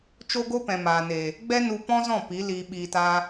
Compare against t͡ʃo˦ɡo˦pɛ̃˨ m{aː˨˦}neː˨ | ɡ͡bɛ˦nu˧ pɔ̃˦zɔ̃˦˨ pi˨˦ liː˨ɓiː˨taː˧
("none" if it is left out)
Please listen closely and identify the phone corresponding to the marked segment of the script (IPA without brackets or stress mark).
aː˨